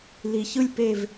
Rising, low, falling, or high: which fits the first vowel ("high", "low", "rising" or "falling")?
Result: low